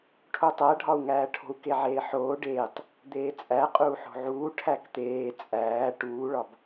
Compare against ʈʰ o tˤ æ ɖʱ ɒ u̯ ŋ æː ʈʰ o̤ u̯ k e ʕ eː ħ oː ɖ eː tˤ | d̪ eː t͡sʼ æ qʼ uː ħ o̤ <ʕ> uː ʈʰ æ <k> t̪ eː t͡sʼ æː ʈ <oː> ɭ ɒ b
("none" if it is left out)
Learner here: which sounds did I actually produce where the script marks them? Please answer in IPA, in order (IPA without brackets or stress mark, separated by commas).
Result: ʕ, k, uː